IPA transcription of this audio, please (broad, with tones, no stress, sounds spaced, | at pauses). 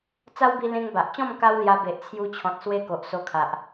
t͡s a˦ w b i˧ l ẽ˧ ŋ b a˨ ʔ t͡ɕ ɔ̃˥˧ m k a˦ w l j a˧ b e˨ ʔ t͡sʰ j u˧ t͡ɕʰ ɔ̃˨ t̚ s w e˦ k o˨ ʔ s o˧ kʰ a˨ ʔ